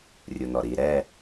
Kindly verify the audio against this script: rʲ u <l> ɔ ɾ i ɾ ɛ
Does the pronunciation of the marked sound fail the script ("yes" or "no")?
yes